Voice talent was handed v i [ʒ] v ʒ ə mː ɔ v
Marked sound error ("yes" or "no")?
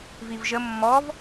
yes